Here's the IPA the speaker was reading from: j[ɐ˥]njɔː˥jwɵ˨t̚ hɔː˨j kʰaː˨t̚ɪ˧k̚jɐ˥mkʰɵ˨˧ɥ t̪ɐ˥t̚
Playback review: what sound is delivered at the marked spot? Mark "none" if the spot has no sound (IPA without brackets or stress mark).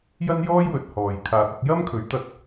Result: ɐ˥